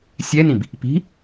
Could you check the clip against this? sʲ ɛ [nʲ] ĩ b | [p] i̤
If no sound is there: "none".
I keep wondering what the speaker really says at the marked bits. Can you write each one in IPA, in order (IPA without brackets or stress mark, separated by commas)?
n, p